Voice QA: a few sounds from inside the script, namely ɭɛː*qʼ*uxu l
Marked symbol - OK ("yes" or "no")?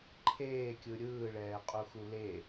yes